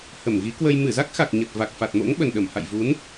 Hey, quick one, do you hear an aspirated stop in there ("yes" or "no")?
no